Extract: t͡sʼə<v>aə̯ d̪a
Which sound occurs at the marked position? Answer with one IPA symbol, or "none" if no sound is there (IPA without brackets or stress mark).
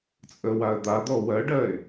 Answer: w